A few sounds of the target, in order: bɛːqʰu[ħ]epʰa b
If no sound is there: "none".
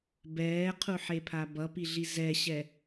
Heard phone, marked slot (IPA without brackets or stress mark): ħ